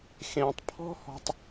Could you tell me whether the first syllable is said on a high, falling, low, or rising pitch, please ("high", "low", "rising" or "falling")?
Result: low